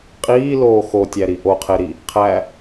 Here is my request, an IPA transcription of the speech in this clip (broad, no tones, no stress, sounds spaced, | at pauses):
qʼ iː l oː x o tʲ æ ɾ i ʔ o qʰ e ɾ i | qʰ æ